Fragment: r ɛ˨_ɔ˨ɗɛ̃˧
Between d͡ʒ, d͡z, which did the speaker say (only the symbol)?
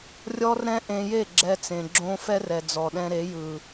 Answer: d͡z